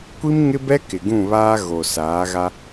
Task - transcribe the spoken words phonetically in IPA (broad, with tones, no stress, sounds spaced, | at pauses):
kʷ i˦ m ŋ ɪ˦ b ɛ˦ k ɪ˨ ɡ ũ˦˨ β aː˦ ɣ o˨ s aː˨˦ ɣ a˦